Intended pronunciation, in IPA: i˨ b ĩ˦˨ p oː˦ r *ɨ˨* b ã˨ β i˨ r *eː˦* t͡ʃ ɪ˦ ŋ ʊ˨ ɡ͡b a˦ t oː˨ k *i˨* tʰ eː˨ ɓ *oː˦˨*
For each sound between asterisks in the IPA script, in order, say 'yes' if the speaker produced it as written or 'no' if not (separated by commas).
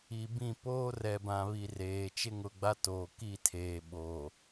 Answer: no, no, no, no